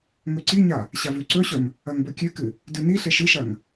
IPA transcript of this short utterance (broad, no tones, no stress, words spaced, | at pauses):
ŋɵǀiɲa | ɕavʉǀɵɕɵm | ɐŋbɵkʲʉkɨ | dʉniɬeʃ ɨʃɐŋ